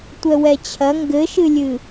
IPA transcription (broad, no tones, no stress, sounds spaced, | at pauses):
tʷ ɛ w ɛ t͡ɕʰ ɐ ŋ ɡ ɘ ʃ ɨ lʲ ɨ